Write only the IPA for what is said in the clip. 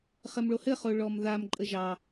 χɘmɭohɘχo ɭɔmðamǃʼə ʒɑ

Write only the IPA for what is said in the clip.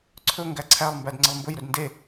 ǀʰɵ ŋɡæǀʰælˠmbæd ŋ͡ǀəlˠmbɵj ɾɵdnde

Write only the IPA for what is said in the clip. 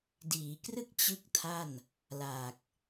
diː˩˦krɯ˥˩k̚ t͡ɕɯ˥˩k̚tʰa˥˩n | laː˨˩k̚

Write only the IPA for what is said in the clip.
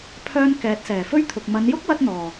pʰœː˥n kɛː˨˥t̚sɛː˨˩ fɵ˥ɥt̪ʰʊ˨k̚ mɐ˨˧njʊ˥k̚wɐ˧t̚ n̪ɔː˨˩

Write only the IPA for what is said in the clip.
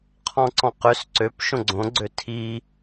qʰɔ̃ǀɔ̃qøs ǀøp ʃõɡ͡ǀõ ɡ͡ǀøtʰi

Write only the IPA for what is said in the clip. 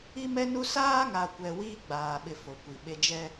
i˦mɛ˦nu˦ saː˦ŋa˨kʷɛ˨ wiː˦ɡ͡baː˨ɓɪ˨ fo˨kʷi˨ɓe˦ d͡ʒɛ˦

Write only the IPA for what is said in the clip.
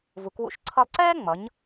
vu˩˧kwṵ˧ʃ ǀʰʌ˧lˠǀɛː˥ŋ͡mʌ˩˧ɲ

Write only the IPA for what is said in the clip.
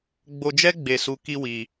ɡ͡bo˦ d͡ʒɛ˦ɡ͡be˧su˧ ki˦wi˧

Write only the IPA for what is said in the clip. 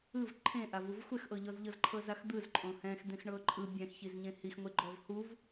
ɯv ǃʰẽʔavuv xʷɛxʔɤʎɔzʎɤz ǃʰɤzaxd̪ɯz ǃʼõhɛ̃x d̪ẽxɳɤǃʼɯ bʲɛ̃xçizɲẽ hixŋʷeɡ͡ǃɔv huv

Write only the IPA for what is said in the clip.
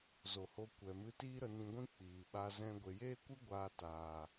zo˨ho˧ kʷɛ˨mɨ˧tiː˦ ɾə˧ nĩ˧ɡʷĩ˦ k͡piː˨ɓa˧ zɛ̃˧ ɡʷe˨jeː˦kʷɨ˦ ɡʷaː˧ taː˨

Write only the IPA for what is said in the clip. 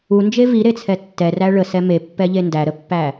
und͡ʒe viɾet͡sʰɛ tːɛræ ɭəsɛ mepːɛʎe ndæɾəpːæ

